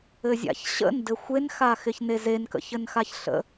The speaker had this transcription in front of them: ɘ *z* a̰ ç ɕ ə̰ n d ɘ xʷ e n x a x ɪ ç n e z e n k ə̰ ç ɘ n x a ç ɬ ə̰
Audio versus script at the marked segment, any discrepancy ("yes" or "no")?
yes